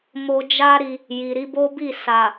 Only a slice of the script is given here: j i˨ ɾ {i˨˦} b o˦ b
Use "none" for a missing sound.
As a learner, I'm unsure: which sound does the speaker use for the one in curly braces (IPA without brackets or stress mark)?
i˨˦